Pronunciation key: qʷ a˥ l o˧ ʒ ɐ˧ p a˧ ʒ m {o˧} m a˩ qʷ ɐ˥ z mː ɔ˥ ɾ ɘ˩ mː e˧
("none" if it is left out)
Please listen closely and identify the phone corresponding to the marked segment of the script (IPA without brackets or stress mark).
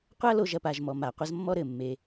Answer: ɔ˧